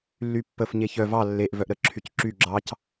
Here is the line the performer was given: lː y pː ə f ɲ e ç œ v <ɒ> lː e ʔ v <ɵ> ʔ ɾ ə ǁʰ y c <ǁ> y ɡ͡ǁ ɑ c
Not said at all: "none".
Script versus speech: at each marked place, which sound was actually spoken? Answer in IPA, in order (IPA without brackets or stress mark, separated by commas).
ɑ, œ, ǁ